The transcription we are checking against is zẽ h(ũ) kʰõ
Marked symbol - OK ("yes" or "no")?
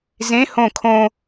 no